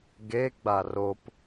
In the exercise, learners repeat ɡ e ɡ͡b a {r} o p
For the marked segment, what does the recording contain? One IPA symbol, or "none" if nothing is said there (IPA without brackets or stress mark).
r